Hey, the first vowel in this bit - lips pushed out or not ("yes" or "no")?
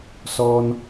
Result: yes